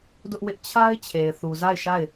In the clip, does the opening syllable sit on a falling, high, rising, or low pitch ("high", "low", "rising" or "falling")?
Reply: high